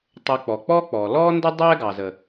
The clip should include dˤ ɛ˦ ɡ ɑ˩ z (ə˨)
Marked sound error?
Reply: yes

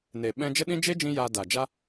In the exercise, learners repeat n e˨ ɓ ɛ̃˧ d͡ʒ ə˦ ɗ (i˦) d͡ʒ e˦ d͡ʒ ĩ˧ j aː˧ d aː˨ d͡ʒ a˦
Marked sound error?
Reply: yes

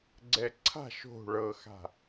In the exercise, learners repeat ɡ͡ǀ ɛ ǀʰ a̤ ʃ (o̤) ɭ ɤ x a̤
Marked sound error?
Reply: no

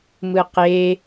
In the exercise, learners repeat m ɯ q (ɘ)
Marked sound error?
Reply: yes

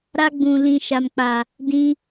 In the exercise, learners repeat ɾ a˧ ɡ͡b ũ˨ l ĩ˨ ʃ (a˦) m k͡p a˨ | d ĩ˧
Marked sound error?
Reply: yes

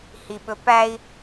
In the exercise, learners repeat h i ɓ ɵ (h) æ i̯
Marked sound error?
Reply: yes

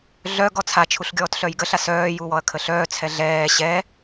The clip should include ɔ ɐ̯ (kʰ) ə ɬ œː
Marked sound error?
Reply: no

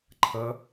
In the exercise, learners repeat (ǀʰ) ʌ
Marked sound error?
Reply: yes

